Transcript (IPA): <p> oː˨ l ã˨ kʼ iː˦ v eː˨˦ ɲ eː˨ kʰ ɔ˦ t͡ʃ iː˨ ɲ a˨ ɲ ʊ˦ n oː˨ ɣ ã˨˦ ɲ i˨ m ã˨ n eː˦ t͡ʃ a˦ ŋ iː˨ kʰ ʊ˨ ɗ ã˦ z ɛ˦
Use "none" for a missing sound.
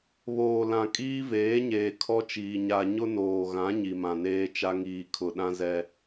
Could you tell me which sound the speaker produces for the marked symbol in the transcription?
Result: β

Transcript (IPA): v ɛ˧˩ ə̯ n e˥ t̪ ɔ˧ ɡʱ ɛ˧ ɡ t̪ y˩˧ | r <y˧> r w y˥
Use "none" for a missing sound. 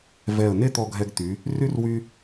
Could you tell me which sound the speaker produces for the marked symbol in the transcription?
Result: y˥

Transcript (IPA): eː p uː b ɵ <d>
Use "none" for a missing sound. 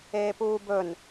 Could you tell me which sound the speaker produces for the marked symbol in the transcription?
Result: n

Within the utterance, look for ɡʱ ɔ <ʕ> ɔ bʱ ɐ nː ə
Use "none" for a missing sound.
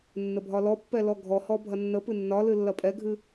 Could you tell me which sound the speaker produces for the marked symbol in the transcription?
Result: h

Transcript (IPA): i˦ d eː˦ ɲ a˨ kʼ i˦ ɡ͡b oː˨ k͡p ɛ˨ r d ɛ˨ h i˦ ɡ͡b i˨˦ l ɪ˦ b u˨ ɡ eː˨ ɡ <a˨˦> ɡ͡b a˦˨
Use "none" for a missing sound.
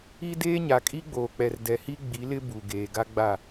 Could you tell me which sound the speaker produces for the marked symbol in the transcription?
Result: a˦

